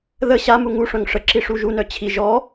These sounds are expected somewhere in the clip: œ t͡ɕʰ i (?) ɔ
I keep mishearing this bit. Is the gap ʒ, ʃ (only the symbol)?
ʒ